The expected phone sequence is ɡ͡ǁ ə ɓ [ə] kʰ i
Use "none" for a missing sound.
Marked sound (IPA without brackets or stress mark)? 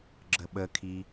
ə